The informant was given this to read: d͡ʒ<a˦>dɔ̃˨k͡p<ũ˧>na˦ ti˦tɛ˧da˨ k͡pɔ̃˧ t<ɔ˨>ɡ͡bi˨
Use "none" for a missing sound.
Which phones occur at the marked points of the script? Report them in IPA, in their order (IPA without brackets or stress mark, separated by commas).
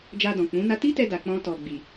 a˧, ũ˨˦, ɔ˨